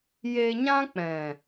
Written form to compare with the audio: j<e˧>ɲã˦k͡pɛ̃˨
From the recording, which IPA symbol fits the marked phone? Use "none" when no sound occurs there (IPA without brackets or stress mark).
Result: e˧